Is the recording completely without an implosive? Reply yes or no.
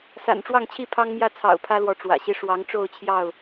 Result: yes